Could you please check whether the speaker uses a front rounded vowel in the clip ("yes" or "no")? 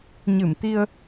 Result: no